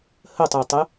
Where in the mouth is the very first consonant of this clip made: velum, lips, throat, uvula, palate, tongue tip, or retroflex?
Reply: throat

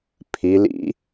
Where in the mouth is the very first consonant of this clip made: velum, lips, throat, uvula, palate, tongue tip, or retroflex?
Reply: lips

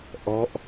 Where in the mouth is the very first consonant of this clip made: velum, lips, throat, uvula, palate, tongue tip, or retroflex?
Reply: throat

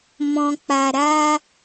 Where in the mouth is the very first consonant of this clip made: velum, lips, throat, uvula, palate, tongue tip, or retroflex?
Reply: lips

